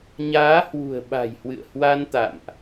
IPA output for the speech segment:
ɲ aː˨˦ h w ṳ˨˩ ə̯ ɓ a̤˨˩ j h w ɨ̰˧˨ ə̯ h w a˧ n t̪ a̰˧˨ m ʔ

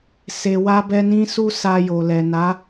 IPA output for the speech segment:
s e˨ w a˧ b ɛ˧ n ĩ˦ s u˦ s a˧ j o˨ l ɛ˨ n a˨˦

